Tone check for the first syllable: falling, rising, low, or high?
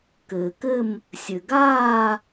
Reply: low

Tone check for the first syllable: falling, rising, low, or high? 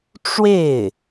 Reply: falling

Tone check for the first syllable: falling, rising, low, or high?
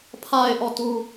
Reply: low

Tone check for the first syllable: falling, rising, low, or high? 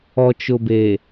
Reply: low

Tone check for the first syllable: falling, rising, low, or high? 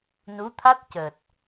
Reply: rising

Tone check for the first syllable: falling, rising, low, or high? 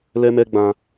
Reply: high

